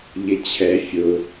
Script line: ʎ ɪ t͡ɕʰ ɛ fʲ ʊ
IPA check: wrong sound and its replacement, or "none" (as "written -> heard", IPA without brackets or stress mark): none